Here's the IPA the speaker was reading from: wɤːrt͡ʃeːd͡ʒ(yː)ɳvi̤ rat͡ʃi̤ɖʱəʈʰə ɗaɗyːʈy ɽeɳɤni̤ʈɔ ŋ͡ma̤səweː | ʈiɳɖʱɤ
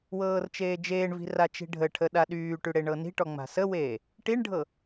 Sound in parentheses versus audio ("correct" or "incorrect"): incorrect